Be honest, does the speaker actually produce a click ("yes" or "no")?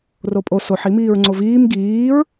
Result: yes